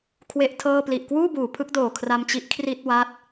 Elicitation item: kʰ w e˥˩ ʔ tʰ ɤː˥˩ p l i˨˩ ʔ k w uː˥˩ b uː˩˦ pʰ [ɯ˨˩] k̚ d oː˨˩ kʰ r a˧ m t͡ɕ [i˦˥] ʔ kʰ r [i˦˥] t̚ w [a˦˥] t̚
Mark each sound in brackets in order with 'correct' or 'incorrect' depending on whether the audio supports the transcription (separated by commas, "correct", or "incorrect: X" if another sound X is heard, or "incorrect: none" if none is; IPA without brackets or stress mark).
incorrect: ɯ˦˥, correct, incorrect: i˥˩, correct